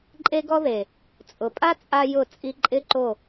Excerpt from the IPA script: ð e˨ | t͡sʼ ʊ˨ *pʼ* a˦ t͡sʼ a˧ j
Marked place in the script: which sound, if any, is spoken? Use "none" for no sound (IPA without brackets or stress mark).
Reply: pʼ